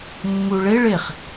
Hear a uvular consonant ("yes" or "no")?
yes